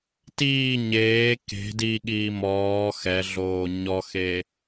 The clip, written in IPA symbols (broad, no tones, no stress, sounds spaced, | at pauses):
t iː ɲ eː k e̤ d i ɠ iː m ɔː x ɛ ɮ oː ɲ ɔ x e